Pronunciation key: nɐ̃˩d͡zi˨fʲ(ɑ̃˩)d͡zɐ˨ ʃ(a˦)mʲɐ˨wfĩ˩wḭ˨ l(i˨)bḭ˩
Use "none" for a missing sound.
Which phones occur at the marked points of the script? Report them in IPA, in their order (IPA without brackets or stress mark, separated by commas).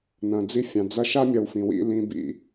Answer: ɑ̃˩, a˦, ĩ˨